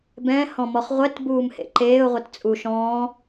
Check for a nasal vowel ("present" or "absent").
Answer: present